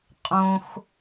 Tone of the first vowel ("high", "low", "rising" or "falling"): high